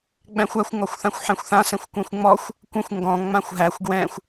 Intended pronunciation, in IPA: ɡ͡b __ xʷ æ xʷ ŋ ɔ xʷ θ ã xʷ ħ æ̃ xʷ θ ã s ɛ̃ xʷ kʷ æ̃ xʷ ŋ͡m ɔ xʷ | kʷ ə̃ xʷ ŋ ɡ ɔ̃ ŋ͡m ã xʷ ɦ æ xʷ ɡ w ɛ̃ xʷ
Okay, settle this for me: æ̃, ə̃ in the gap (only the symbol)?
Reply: æ̃